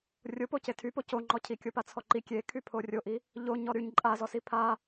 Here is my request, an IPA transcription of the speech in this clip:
rʲ o p o c e tʰ y p o c o ŋ͡ǃ ɔ cʰ i kʲ o p a t͡sʰ ɔ ǃ i kʲ e kʰ y pʰ o rʲ o ʔ i | ʎ o ɲ ɔ ɾ y ɲ ǃʼ a z ɔ s i pʰ a

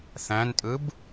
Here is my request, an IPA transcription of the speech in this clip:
θ æ̃ n tʼ ɯ b

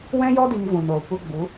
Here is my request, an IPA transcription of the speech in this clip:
w ɛ̃˦ j ɔ˦ d i˧ ŋ v ũ˨ n oː˨ kʷ ə˧ ɡ͡b u˨˦

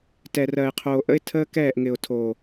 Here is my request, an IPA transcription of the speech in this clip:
t ɛ˨ r ɜ˨ ɪ̯ qʰ oː˨ ʔ ə̰˦ ɪ̯ tʰ əː˦ k ɛː˦˨ ʔ ŋ ɪ˨ ʊ̯ tʰ o˨

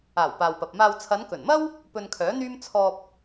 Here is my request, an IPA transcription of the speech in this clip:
aː˨˩ w p aː˨ w p ɐ˨ p̚ m aː˧ w t͡sʰ ɐ˨˧ n k ɵ˨˩ n m ɐ˥ w | p ɵ˧ n kʰ œː˨˥ n̪ yː˥ m t͡sʰ ɔː˧ p̚

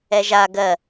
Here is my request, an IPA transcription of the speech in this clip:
ɛ ʒ a ɡ ɜ

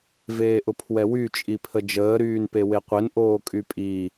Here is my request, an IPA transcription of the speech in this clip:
v eː ʔ ʊ pʰ w ɛ w y t͡ʃʼ i pʰ ə d͡ʒ əː ɾ yː n p e w e qʷ e n ʔ oː kʼ y pʼ i

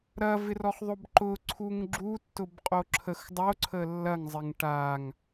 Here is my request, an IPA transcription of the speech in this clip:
ɾ ɐ v ɪ r ɔ χ ðˤ o b ǃ ʊ ǀʰ u ŋ ɡ͡ǁ u tː ʊ b qʼ o ǁʰ ə x dˤ o ǀʰ ə lː ɐ ŋ zˤ ɪ ŋ ʈ a ŋ

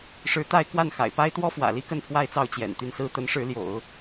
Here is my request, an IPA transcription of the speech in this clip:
ʂ ɻ̩˧˥ t̪ a˥˧ ɪ̯ k w a˥˩ n x a̰˨˩ ɪ̯ p a˥ ɪ̯ t̪ w ɔ˥ f w ä̰˨˩ l i˥ k ə˥˧ n pʰ w a˥˧ ɪ̯ t͡s ɑ˥˩ ʊ̯ t͡ɕ j ɛ̰˨˩ n t̪ y˥˩ n s ɹ̩˥ t̪ ə˧˥ n ʂ ɻ̩˧˥ l j o̰˨˩˦ ʊ̯

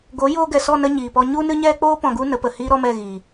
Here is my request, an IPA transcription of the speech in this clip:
ɡ o˨˦ j oː˧ ɡ ɛ˨ s ɔ˦˨ n ə˧ ɲ iː˨ p ɔ˧ ɲ u˦ n ɨ˦ ɲ ɛ˦ k͡p oː˦ p ɔ̃˨ ɡ u˧ n ə˨˦ p ə˨ h iː˦ ɾ ɔ˦ m ɛ˦˨ ɣ iː˨

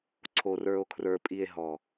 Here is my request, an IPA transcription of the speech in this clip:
ǀʰ o˨ r ə˞˨ o̯ kʰ r ə˞˨ pʼ i˨ e̯ ɦ ɔ˨

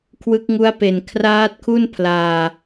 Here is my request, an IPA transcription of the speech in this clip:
kʰ w ɯ˦˥ k̚ ŋ u˦˥ a̯ p e˨˩ n kʰ r aː˦˥ t̚ kʰ u˥˩ n pʰ l aː˧

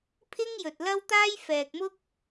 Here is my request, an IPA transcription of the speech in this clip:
pʰ ɪ˥ ŋ j ɵ˨ t̚ l ɐ˥ w t̪ aː˥ j f ɛː˨ k̚ m ʊ˥ k̚

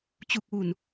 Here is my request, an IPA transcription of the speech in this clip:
t͡ɕ u˨˩ k̚ w u˨˩ n

